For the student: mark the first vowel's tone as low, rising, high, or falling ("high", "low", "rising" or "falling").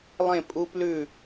falling